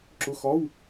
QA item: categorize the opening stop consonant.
click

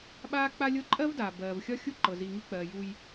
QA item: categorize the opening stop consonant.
implosive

